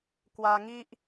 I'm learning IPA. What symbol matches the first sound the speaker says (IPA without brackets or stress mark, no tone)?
k